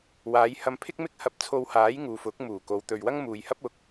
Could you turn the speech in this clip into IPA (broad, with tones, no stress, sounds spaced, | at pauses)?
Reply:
w aː˨˧ j h ɐ˧ m pʰ ɪ˥ k̚ m ɪ˥ k̚ h ɐ˧ p̚ t͡sʰ o˧ w h aː˨˥ j ŋ uː˨ f ʊ˨˥ k̚ m uː˨˩ k o˨˧ w t̪ ɵ˨ ɥ w ɐ˥ ŋ m uː˨ j h ɐ˥ p̚ ʊ˨˥ k̚